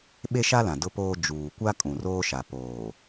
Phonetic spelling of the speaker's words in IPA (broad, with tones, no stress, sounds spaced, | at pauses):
ɓ e˦ ʃ a˦ l ã˨ d ʊ˦ p oː˦ d͡ʒ uː˨ kʷ a˦ kʼ ũ˨ r oː˦ ʃ a˨ p oː˨